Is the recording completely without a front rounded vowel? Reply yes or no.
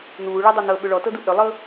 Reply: no